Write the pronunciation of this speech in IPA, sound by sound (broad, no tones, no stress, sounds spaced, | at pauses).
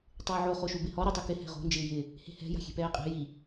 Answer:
tˤ ɪː ʕ o χ o ʃ u b ɪ h ɔ ɾ o tˤ i k ɪ h ɛ̤ ʁ o̤ n d͡ʒ ɪː j ɪ | h e̤ h ɛ̤ j a̤ xʲ e̤ p ɛː qʼ e̤ j i